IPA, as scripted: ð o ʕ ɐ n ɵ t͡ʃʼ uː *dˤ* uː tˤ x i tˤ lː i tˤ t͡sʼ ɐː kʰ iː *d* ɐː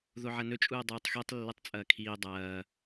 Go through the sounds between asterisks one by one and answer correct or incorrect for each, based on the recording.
correct, incorrect: dˤ

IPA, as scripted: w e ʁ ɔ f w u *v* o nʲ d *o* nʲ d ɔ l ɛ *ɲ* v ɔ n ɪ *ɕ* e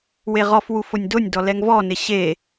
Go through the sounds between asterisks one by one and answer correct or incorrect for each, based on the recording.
incorrect: f, correct, incorrect: ŋ, correct

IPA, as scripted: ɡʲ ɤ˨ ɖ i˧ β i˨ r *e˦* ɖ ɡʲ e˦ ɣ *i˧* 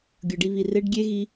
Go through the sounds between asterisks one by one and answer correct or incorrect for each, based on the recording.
correct, correct

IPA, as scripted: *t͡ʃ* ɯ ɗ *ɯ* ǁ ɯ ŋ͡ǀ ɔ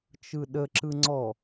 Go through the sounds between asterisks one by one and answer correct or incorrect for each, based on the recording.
correct, incorrect: ə

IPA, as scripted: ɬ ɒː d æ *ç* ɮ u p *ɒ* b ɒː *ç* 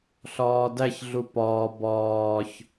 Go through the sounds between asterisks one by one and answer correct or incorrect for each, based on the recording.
correct, incorrect: ɒː, correct

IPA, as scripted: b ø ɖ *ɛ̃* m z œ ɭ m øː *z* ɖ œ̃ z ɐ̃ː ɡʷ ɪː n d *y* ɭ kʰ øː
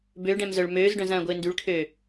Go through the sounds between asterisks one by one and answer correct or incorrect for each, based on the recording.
correct, correct, correct

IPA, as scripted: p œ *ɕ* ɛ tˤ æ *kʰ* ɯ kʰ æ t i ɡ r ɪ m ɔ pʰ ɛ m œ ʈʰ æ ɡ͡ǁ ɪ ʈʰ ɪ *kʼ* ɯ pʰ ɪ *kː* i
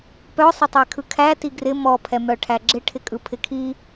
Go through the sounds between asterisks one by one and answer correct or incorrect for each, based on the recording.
incorrect: sˤ, correct, correct, incorrect: kʰ

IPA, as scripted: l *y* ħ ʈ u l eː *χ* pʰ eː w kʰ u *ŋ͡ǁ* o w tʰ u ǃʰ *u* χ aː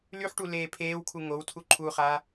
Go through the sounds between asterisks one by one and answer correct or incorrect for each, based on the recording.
correct, incorrect: none, incorrect: ŋ, correct

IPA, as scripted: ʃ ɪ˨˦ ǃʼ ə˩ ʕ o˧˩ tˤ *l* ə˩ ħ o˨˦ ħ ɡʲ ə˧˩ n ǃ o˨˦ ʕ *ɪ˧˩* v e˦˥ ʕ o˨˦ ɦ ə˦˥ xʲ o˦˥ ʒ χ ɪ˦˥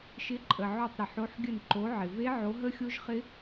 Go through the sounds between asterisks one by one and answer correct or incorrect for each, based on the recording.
incorrect: ɾ, incorrect: ɪ˩

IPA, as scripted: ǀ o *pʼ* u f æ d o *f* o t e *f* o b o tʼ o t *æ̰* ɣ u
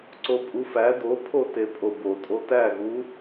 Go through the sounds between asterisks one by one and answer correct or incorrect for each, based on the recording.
correct, incorrect: pʰ, incorrect: pʼ, incorrect: æ

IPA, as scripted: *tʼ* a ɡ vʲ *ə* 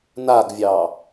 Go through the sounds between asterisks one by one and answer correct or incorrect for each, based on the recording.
incorrect: n, incorrect: ɑ

